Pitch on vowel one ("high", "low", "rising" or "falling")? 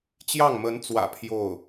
falling